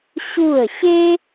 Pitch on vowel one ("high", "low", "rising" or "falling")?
falling